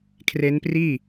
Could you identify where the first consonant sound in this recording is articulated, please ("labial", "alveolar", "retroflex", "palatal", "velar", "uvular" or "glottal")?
velar